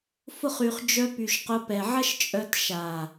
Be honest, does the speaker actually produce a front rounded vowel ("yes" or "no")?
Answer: yes